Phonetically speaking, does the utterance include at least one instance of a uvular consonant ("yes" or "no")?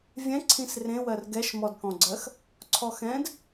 no